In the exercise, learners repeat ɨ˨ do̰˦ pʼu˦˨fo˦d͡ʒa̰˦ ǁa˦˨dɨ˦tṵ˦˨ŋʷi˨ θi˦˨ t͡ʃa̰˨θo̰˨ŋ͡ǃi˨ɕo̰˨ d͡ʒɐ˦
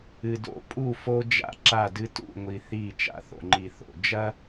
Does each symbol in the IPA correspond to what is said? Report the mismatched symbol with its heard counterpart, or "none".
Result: ɕ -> θ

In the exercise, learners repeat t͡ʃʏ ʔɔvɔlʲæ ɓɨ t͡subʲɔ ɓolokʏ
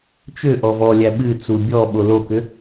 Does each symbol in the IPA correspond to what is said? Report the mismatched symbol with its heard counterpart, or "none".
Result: none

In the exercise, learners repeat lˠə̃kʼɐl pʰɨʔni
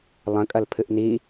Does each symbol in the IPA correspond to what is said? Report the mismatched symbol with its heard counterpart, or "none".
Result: none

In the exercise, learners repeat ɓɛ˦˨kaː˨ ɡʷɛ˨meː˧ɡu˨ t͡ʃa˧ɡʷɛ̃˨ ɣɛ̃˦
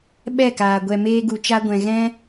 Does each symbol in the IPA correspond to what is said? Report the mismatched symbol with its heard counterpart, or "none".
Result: none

